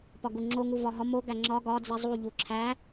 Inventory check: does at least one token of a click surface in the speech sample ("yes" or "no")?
yes